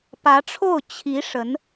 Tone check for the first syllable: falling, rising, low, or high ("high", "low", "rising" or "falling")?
rising